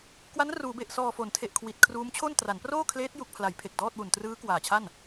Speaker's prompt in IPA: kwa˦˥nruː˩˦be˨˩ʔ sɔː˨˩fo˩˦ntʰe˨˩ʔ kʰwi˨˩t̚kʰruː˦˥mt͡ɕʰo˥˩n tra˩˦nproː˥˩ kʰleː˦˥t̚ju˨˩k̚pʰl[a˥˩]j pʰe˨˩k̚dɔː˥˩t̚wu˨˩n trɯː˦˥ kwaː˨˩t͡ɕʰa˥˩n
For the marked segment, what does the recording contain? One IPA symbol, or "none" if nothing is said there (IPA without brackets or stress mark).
a˩˦